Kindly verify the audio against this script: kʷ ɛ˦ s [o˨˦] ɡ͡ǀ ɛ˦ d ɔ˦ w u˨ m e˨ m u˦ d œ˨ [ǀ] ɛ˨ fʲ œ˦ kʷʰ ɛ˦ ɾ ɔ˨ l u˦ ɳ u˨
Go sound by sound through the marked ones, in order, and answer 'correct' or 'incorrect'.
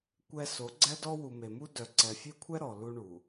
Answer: correct, correct

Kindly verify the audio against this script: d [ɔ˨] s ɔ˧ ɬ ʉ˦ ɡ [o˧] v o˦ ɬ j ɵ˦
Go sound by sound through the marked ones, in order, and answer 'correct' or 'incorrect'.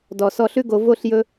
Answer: correct, correct

